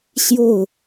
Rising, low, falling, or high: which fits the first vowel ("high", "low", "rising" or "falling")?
falling